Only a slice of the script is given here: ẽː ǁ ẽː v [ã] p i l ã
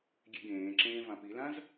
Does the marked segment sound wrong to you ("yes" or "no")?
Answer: no